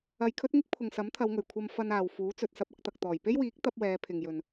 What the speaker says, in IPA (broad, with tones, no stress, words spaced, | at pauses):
ɐ˧jkʰɵ˥t̚ŋɪ˥k̚ pʰʊ˨ŋsɐ˨˥mt̪ʰɐ˨˧wŋɵ˨˩ɥ kʷʰɐ˧m fɐ˧n aː˨wfuː˨˥t͡sɵ˨t̚ sɐ˧p̚ɐ˧k̚t̪ɐ˨k̚ t̪ɔː˨˩jpe˥jwiː˨˥k̚ t̪ɐ˥p̚wɛː˨˧ pʰɪ˨ŋjɵ˨n